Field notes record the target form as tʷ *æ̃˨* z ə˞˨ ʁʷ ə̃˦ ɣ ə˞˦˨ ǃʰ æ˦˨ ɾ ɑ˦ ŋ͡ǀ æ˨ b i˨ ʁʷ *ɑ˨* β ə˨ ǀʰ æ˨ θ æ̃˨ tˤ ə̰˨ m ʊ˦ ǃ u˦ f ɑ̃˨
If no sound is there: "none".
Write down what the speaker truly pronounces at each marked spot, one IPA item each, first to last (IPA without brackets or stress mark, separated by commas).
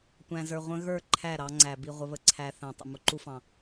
æ̃˨, ə˨